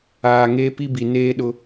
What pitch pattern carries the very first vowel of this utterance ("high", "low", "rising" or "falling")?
low